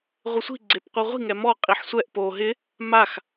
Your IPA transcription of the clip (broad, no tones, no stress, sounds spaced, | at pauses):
ʁʷ ɪ sʷ i̤ ɡ͡ǀ e p qʷ i ʁʷ i̤ ŋ ɛ m ɔ qʼ i ħ sʷ ɛ ʔ p o ɦ ɪ | m a x